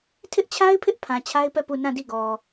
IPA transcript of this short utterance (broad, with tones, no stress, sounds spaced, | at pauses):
tʰ ɪ˦ ʔ t͡ɕʰ a˦ ɪ̯ pʰ ɪ˦ ʔ pʰ ã˨ t͡ɕʰ a˦ ɪ̯ p ɛ˦˨ p u˦˨ n ã˦˨ d i˦˨ ɡ ɔ˨